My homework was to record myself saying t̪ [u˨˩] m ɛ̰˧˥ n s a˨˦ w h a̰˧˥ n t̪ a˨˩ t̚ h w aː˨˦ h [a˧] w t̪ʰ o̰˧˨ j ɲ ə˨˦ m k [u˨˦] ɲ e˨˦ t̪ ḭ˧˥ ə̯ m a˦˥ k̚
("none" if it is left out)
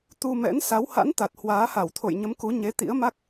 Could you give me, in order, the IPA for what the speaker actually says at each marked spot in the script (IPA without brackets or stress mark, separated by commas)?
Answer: u˧, a˧˩, u˨˦